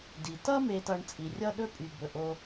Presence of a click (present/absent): absent